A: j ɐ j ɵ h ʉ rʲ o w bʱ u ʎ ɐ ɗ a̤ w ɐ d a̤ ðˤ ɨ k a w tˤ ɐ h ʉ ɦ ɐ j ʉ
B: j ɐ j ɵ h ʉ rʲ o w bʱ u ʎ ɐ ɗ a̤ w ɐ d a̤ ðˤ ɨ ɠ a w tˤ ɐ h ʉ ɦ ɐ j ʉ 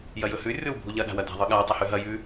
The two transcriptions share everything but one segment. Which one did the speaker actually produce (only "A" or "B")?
B